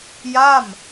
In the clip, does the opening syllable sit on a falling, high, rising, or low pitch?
falling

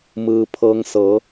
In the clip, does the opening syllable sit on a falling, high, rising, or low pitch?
low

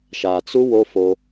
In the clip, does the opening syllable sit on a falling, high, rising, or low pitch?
low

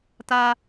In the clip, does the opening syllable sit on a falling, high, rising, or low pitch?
high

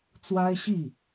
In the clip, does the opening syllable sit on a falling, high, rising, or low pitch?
high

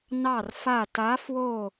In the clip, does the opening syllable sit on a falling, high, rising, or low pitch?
falling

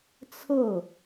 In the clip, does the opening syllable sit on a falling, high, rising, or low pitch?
falling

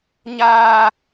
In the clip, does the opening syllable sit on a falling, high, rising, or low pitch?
high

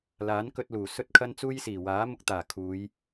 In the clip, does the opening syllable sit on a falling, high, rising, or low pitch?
rising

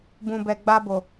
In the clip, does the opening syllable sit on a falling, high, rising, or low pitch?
low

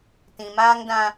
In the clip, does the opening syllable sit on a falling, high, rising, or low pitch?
low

